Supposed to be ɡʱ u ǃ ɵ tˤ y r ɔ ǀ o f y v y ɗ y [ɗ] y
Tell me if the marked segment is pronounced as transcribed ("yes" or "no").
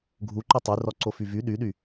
yes